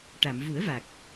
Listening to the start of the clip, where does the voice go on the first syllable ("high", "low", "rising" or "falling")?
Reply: low